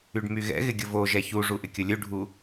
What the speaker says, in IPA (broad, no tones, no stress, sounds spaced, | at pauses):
y ɖ m y ɣ ɛ̰ ɣ ɪ ɡʲ ʊ v o ʒ ɛ ç u ʐ u ʔ ɪ kʲ ʊ lʲ u ɖʱ u